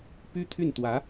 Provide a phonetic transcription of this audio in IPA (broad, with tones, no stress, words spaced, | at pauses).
py˥t̪ʰy˥˩nt̪wä˧˥